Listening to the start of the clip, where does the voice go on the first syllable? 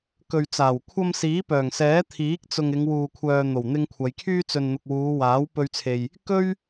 low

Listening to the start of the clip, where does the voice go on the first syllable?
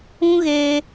high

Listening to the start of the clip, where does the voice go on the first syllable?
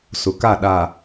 low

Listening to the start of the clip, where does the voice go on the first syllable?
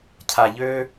low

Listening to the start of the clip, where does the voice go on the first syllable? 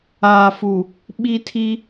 low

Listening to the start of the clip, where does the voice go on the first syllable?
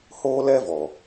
high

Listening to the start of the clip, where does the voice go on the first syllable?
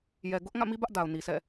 low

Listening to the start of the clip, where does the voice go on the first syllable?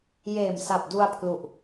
low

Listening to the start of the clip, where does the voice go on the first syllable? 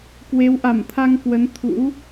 rising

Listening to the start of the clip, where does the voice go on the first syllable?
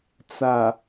low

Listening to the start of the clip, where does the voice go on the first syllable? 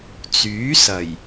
rising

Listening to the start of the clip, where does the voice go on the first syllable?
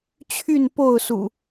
falling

